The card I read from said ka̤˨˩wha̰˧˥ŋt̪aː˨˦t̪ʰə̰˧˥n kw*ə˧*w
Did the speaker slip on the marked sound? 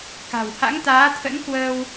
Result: yes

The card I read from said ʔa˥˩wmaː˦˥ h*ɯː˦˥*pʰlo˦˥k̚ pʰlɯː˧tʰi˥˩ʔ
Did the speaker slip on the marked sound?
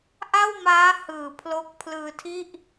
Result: yes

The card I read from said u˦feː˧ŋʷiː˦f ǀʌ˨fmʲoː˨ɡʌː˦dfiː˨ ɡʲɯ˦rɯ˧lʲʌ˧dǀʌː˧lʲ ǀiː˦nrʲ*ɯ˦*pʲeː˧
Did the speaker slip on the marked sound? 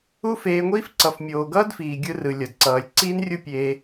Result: yes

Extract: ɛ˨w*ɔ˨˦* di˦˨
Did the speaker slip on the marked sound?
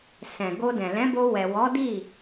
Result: no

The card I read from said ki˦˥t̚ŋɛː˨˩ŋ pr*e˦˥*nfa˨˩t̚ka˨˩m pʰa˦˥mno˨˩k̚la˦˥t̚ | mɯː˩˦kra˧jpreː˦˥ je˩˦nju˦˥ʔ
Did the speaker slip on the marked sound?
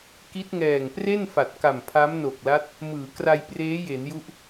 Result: yes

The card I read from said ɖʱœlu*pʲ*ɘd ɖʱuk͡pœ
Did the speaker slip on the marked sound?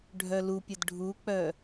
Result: no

